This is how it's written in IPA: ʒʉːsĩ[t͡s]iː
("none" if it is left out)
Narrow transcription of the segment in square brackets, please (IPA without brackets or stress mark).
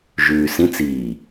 t͡s